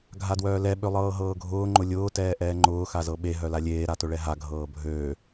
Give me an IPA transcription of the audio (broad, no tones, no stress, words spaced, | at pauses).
ɡʱadwœːlɛ ɓølˠɤːɦɤːɡʱʊː ŋ͡ǃʊlʲʊː tɛːʔɛːŋ͡ǃʊː xazɤɓe ɦœlalʲeː ɾatʊɭɛɦa ɡʱɤːbʱøː